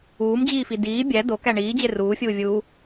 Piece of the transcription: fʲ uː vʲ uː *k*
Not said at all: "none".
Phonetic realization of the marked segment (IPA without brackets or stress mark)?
none